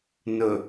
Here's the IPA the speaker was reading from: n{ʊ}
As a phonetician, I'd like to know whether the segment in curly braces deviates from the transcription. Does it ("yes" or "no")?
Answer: no